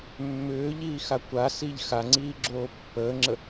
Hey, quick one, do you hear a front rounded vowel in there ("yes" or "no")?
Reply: yes